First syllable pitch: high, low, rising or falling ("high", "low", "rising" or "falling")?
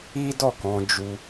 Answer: high